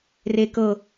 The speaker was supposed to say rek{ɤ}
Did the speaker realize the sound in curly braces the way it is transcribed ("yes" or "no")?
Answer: yes